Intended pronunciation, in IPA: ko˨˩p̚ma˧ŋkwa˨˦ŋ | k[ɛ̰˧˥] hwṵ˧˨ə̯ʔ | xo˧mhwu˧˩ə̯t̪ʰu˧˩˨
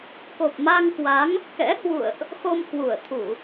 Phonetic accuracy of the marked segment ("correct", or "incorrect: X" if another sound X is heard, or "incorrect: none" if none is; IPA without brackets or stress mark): correct